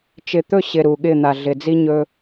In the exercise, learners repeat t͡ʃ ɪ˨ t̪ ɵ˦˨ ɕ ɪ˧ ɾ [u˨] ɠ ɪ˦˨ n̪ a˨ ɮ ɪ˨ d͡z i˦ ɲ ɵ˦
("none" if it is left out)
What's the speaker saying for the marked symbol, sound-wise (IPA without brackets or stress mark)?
u˨